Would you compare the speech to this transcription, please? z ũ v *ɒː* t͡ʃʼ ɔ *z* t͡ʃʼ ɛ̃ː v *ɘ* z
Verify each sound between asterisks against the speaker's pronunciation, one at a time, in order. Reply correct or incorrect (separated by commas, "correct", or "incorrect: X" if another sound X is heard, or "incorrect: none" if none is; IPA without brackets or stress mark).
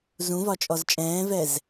incorrect: ɒ, correct, incorrect: ɛ